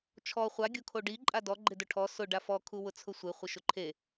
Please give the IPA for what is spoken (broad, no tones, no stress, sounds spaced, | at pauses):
t͡ʃʰ ɔ χʷ a ɡʲ o kʰ o ɖ i ǃʼ a d ɔ ɡ͡ǃ ɪ d ʊ ʈʰ ɔ s ʊ ɖ a f ɔ kʰ u w ʊ t͡sʰ ʊ sʷ ɪ χʷ ɪ ʃ ʊ ǃʰ e